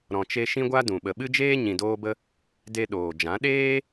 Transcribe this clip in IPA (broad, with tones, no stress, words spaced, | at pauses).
ɾɔ̃˨t͡ʃe˧ ʃĩ˦ɡʷa˦dũ˨ ɓə˨ɓɨ˦d͡ʒeː˦ ɲĩ˨doː˧bə˧ | de˧ ɗoː˨d͡ʒã˨˦ ɗeː˦